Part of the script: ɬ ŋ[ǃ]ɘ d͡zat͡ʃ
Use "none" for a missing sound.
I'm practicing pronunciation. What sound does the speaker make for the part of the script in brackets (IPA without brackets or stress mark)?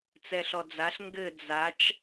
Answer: ɡ